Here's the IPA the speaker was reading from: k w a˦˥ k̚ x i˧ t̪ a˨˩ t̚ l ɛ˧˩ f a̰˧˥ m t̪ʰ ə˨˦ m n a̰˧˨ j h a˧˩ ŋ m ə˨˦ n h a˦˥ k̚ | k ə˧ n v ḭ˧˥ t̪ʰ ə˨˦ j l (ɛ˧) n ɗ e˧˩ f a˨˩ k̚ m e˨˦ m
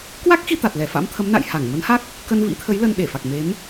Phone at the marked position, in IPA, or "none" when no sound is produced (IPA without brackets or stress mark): ə˧